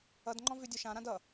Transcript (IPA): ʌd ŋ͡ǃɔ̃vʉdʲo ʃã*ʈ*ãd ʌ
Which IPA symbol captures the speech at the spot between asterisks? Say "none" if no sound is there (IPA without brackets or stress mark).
ɾ